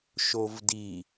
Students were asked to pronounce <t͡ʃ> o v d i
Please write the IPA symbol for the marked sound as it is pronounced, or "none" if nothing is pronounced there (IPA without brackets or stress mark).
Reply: ʃ